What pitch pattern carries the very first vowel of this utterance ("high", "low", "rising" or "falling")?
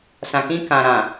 low